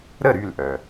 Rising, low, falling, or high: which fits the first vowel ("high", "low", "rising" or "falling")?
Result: falling